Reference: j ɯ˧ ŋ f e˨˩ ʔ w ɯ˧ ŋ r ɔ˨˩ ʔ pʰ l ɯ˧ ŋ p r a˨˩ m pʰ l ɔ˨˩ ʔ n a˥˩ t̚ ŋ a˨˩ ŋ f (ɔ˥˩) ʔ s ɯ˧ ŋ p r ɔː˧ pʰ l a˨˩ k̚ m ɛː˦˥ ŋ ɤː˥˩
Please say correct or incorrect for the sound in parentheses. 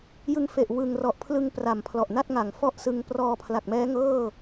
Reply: correct